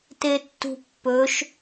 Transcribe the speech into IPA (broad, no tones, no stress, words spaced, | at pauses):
tetːṳpːɵʃ